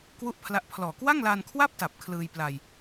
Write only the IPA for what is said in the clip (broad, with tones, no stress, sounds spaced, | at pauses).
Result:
k w u˥˩ ʔ pʰ l a˦˥ ʔ pʰ l ɔː˨˩ k w a˥˩ ŋ l a˧ n kʰ w a˥˩ p̚ t a˨˩ p̚ kʰ l ɯː˧ j p l a˧ j